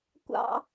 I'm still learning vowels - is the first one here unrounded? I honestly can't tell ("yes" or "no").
yes